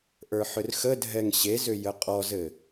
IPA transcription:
ʔ ə˞ ħ ʏ r x ə dʱ ɛ ŋ ɕ e z ʏ j ə qʼ ɔ z ɘ

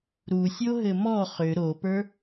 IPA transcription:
ɾ u sʲ o ɦ ɘ m ɔ χ ʏ ɾ o p ə˞

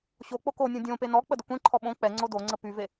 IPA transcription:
ɕ o k͡p o k o nʲ õ dʲ õ p e n ɔ k͡p ə d ə kʷ ẽ ǃʰ ɔ ɓ õ k͡p ɛ ŋ͡ǀ o d o ŋ͡ǀ ə p y v e

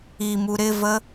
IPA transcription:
i m u ɾ ɪ v ə

